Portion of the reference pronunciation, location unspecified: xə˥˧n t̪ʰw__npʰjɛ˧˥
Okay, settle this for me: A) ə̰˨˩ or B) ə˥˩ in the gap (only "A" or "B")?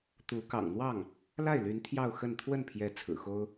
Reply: B